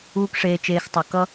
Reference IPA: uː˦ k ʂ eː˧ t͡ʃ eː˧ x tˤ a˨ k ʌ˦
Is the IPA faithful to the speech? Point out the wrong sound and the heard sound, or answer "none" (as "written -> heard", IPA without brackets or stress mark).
none